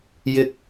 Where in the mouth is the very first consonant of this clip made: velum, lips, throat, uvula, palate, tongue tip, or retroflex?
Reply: palate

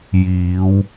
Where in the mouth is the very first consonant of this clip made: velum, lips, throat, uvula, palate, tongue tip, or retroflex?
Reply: palate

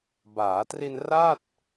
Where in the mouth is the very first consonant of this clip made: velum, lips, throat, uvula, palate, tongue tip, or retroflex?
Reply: lips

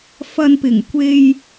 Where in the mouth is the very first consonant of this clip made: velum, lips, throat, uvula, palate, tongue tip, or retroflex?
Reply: lips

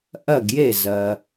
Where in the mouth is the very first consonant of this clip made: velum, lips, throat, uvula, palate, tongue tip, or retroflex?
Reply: throat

